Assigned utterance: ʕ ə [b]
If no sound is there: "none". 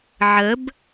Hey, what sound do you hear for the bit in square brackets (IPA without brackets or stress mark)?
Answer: b